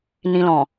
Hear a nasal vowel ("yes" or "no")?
yes